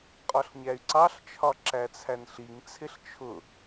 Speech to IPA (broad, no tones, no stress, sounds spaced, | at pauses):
qʼ ɒ ɬ ɲ æ y̯ ǀ ɑ ɬ t͡ʃʰ ɒ ǁ æ t͡sʰ æ n ɬ i ŋ t͡sʰ ɪ ɬ t͡ʃʰ ʊ